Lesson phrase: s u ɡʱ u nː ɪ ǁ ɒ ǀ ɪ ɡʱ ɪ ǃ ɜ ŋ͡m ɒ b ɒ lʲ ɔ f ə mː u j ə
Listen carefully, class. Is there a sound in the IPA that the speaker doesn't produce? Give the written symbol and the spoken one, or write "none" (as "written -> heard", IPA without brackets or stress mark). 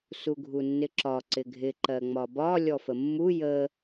none